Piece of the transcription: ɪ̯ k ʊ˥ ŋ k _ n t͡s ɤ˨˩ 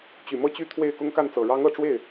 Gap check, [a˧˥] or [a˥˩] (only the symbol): a˥˩